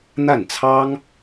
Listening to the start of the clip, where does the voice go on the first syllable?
falling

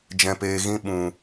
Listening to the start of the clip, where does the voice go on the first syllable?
low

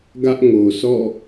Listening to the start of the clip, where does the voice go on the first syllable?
high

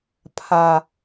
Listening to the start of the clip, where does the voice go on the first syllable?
low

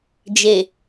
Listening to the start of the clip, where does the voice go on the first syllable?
low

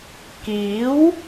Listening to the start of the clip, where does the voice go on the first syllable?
rising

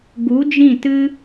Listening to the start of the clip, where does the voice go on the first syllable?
rising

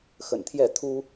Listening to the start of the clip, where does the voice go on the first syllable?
low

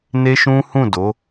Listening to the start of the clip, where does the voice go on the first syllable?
high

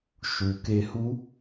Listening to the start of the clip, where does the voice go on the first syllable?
low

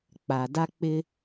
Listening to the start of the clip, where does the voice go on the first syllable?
low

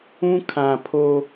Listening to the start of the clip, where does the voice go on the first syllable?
high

